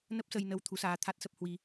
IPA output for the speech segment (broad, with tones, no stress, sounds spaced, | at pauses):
n ə˦˥ p̚ s ə˧ j n ə˨˦ w t̪ʰ u˨˦ s aː˧ t̪ʰ a˦˥ t̚ s ə˦˥ p̚ h w i˧